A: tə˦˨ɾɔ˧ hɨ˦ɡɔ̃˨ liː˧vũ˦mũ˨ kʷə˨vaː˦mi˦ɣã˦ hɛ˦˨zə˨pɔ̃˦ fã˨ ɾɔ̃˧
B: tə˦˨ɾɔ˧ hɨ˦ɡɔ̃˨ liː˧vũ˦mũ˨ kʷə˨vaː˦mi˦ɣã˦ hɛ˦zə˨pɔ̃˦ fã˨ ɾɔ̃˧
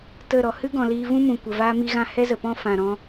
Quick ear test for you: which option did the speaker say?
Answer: B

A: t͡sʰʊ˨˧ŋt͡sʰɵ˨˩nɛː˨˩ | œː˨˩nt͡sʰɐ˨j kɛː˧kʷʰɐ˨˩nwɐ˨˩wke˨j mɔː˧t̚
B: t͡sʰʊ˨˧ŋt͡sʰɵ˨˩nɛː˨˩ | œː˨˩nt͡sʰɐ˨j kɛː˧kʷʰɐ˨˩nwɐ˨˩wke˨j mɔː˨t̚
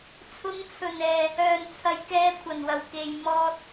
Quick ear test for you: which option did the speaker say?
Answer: A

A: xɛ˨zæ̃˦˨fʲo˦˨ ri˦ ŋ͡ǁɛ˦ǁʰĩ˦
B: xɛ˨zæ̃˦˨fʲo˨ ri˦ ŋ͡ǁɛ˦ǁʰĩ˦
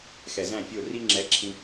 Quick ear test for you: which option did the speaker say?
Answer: A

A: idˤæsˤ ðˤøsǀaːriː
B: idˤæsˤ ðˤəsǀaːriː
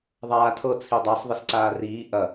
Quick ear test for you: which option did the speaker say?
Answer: B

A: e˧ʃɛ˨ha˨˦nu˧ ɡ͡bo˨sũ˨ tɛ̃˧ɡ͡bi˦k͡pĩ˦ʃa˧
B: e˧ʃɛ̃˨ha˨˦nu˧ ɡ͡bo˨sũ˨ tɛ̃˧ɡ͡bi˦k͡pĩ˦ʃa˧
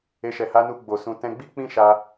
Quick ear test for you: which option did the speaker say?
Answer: A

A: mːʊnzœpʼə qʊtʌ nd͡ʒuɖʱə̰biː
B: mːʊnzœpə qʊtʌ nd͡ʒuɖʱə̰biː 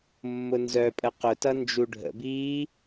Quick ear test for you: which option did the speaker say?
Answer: A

